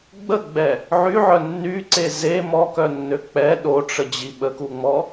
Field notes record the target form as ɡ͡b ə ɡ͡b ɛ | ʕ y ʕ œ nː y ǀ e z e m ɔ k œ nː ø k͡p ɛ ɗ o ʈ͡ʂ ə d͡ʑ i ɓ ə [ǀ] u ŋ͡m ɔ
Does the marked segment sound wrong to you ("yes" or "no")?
yes